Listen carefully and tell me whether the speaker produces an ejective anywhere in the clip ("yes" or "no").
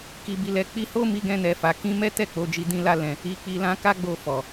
no